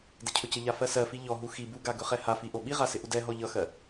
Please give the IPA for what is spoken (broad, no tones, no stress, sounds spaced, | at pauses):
d ɪ cʰ ɵ c ɪ ʎ a f ɜ s ɜ f i ʎ ɔ ɦ u x i b u ɡ a ɡ ɵ χ ɛ h a f i ʔ o ɓ i ʁ a s ɪ ʔ u d ɛ ɦ ɔ ʎ ʌ x ɜ